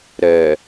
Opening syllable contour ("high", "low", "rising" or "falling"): low